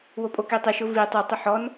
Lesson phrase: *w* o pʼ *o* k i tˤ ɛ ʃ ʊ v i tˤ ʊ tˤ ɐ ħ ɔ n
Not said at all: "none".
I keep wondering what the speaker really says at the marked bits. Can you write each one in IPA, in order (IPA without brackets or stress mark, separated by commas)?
w, o